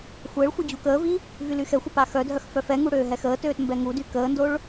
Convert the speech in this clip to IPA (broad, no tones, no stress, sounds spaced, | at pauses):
xʷ əː ɭ xʷ e d͡ʑ u k əː v i | v y l y x ɛ xʷ ə p a x œ dʱ œ x f œ f ɛ ŋ u ɽ øː ɦ ɛ x əː t øː t m b ɛ ŋ u d y k əː n d o ɭ